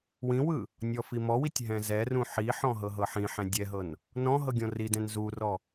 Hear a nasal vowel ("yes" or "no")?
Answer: yes